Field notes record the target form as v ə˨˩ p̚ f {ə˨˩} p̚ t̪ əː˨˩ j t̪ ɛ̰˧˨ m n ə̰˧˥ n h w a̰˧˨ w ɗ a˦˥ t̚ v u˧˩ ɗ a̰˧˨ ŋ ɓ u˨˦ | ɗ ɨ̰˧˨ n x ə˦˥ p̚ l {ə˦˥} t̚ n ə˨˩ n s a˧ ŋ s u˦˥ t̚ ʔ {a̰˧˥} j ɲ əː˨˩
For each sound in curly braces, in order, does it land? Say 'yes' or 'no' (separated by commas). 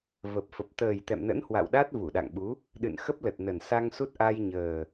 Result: yes, no, no